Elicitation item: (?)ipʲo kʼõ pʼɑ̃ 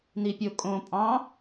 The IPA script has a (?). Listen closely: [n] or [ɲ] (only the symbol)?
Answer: n